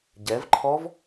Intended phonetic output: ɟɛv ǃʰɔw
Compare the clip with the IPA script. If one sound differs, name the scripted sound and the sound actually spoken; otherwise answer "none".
w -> v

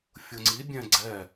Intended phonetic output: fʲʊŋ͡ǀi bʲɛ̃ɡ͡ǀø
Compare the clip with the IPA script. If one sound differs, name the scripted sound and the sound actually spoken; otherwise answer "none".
ø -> ɛ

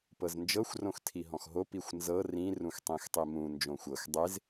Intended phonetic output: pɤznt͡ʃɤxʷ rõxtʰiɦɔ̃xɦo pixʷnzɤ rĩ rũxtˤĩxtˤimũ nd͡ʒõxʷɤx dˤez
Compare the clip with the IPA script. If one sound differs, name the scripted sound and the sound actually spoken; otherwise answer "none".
t͡ʃ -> d͡ʒ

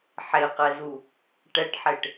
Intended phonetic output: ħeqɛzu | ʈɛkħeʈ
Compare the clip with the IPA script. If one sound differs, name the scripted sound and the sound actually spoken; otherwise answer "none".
k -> ʈ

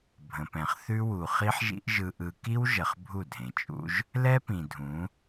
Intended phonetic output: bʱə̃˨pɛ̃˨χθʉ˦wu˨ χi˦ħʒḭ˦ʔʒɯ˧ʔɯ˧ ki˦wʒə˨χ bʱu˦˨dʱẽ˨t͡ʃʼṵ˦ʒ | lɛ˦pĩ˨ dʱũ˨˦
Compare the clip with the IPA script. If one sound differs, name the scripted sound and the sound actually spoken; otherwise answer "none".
none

